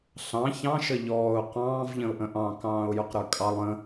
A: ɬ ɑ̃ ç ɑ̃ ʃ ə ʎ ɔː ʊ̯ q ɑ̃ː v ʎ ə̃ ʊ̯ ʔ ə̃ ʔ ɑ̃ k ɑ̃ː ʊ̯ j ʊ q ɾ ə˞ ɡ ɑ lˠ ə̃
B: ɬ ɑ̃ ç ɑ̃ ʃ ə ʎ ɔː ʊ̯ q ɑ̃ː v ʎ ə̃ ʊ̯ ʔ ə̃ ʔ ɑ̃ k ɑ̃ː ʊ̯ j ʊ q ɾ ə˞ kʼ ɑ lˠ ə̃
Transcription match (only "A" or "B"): B